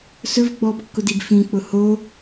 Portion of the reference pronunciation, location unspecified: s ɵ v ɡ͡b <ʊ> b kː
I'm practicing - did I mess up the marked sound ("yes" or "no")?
yes